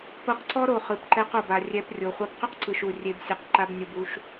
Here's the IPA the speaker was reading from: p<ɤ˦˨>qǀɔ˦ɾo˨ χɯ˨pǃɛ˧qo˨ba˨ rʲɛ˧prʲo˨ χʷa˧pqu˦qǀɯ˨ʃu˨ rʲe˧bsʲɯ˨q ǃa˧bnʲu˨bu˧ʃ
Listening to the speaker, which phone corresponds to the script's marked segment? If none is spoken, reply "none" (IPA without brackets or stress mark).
ɤ˧